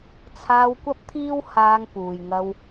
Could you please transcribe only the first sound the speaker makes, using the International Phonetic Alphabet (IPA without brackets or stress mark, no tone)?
t͡sʰ